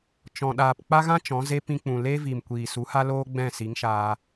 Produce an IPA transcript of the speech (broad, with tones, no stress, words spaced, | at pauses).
t͡ʃɔ̃˨ ɗaː˨pk͡pa˦ɣã˦ t͡ʃɔ̃˨˦ze˦ pĩ˧k͡pũ˨ le˦vi˨m kʷiː˨su˨˦ha˦ loː˦ɡ͡bɛ̃˦˨si˨˦ŋʃaː˧